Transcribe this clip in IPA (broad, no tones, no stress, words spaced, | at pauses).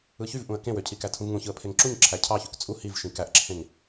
ɯçyv ʔũə̯kẽwøcʰi kætʰũvŋũçɯə̯ pʰeŋǁuɲǁʰæ cʰɑçyk t͡sʼu hiv ʃĩkæʔǁʰẽŋ